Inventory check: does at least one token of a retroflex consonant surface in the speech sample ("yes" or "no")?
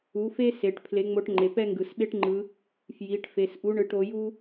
yes